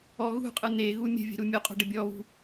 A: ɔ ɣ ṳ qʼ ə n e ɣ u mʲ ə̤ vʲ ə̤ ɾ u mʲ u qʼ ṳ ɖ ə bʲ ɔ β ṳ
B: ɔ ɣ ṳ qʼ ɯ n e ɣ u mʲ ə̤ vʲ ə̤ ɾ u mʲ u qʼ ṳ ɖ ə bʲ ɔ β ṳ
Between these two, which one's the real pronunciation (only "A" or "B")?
B